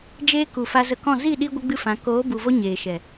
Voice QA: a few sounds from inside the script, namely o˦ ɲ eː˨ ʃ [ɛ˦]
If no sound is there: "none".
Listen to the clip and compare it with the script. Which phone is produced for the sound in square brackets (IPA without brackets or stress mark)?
ɛ˨